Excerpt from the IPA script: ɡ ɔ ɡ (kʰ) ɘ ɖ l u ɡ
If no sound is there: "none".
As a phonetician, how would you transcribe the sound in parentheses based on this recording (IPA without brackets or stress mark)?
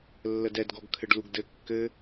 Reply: kʰ